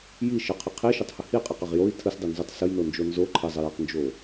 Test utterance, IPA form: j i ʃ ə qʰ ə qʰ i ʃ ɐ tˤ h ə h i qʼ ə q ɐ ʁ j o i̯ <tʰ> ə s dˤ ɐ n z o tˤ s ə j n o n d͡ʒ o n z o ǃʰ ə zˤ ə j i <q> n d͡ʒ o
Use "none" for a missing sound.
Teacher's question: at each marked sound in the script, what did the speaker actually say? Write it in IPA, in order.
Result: tʰ, q

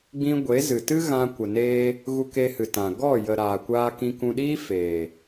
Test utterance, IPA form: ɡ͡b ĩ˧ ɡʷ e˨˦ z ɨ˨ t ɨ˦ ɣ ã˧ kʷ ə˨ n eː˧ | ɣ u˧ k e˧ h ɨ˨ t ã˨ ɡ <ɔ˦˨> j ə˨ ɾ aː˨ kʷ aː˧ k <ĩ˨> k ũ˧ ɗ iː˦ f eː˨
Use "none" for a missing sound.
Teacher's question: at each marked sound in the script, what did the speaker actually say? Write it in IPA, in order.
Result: ɔ˦˨, ĩ˧

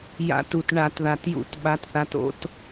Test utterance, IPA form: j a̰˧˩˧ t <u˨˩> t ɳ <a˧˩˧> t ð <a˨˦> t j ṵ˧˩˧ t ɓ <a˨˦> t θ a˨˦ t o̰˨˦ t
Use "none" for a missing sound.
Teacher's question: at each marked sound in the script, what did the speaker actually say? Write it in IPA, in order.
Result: u˨˩, a˧˩˧, a˨˩, a˨˦

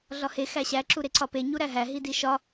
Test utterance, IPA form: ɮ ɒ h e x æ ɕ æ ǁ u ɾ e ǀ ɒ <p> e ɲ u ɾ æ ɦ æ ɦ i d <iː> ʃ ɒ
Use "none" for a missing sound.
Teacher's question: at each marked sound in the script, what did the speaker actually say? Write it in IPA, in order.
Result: p, i

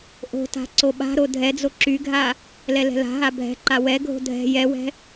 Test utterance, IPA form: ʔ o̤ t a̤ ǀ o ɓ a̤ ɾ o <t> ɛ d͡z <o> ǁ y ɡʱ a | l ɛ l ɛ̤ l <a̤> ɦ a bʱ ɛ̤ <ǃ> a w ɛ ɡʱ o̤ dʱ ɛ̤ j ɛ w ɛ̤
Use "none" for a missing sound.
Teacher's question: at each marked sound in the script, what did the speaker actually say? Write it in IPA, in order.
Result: dʱ, o, a̤, ǃ

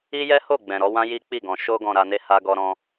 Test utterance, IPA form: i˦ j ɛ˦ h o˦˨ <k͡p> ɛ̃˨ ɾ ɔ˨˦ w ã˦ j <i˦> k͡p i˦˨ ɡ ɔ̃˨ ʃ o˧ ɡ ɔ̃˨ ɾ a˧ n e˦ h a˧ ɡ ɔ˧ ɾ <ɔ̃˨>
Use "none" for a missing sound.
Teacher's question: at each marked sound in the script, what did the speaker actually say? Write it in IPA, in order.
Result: ɡ͡b, i˦, ɔ̃˧

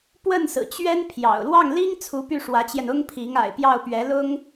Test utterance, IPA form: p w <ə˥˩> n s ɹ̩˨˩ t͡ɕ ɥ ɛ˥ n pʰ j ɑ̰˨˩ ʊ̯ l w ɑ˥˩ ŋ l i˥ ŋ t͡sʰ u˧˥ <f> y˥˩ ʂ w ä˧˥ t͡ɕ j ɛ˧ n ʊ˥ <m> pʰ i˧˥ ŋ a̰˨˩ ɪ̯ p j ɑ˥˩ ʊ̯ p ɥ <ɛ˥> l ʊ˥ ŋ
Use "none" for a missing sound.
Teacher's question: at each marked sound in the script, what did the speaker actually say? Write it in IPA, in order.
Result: ə˥˩, p, ŋ, ɛ˧˥

